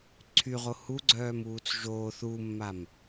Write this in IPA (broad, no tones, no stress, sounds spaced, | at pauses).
ǀʰ y ʁ o h u ɡ͡ǀ œː m uː t͡s ʒ oː θ u mː a m